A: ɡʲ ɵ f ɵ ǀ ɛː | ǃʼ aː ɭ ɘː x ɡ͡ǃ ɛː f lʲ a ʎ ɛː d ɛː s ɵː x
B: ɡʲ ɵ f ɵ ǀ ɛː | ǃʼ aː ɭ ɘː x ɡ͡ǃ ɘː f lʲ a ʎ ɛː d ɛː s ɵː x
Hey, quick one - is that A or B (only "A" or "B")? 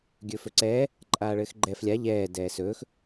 A